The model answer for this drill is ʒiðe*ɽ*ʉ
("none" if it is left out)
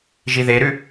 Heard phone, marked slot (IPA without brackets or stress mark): ɾ